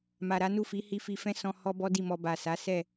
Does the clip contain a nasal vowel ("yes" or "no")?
yes